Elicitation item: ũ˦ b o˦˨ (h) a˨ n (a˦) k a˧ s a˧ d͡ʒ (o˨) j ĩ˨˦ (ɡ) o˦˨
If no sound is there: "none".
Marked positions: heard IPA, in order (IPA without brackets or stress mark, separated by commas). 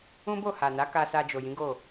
h, a˨˦, o˨, ɡ